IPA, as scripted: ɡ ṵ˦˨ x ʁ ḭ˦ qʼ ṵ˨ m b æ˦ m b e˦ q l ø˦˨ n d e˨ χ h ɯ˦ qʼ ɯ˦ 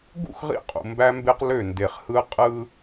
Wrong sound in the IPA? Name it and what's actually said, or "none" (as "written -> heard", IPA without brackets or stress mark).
none